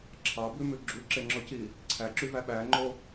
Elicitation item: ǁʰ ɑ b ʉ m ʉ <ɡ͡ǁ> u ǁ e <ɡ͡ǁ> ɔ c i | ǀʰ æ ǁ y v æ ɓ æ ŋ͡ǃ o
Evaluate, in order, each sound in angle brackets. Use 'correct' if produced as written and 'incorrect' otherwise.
correct, incorrect

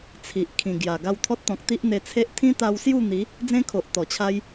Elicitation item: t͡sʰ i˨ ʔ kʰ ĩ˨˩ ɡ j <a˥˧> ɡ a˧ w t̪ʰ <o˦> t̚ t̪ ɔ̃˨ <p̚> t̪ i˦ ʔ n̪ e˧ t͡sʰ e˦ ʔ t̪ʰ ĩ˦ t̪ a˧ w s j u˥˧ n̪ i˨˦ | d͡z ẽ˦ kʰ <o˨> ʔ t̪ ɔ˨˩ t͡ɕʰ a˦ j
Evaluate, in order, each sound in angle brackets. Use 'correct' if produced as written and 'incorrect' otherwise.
incorrect, incorrect, incorrect, correct

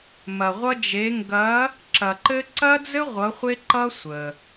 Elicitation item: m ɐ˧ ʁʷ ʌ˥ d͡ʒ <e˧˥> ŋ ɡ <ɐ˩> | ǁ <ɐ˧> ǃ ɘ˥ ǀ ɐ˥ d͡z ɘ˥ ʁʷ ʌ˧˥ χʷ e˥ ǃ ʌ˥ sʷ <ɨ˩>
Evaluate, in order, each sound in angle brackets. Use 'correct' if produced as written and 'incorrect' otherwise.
correct, incorrect, correct, incorrect

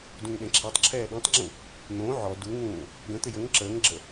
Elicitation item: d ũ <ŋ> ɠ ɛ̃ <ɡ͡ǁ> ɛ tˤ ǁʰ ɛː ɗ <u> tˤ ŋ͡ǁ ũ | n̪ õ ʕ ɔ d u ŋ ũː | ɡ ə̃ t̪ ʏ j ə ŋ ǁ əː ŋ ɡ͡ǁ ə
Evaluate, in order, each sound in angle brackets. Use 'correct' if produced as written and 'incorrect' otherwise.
correct, incorrect, incorrect

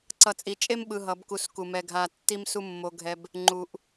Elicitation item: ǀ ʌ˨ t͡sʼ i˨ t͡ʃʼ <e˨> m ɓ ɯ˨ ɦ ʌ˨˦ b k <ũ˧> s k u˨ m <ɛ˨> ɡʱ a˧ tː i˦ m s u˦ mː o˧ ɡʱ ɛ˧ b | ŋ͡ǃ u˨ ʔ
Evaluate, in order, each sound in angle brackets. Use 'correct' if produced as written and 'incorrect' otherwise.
incorrect, incorrect, incorrect

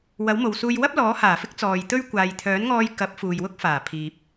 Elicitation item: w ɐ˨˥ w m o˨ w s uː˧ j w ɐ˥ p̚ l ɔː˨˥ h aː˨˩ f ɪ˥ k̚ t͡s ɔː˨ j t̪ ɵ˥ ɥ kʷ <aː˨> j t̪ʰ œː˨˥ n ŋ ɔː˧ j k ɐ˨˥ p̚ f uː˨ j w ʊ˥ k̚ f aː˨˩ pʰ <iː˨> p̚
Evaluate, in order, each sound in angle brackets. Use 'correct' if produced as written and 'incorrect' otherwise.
correct, correct

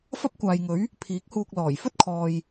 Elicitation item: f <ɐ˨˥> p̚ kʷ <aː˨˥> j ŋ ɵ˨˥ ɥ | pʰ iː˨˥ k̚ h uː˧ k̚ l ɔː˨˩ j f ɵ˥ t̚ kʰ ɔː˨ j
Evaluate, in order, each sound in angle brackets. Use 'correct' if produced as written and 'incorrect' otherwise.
incorrect, incorrect

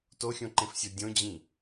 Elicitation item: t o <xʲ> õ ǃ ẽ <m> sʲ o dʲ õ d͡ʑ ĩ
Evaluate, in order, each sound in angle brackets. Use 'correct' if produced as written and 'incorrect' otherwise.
correct, incorrect

